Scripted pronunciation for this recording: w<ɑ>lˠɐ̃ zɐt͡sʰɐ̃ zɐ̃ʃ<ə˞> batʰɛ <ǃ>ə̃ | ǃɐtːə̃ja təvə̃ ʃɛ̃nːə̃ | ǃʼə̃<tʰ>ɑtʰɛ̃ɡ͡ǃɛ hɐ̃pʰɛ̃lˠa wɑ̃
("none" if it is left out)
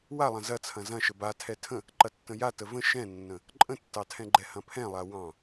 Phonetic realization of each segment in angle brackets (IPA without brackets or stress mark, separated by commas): a, ə, tʰ, tː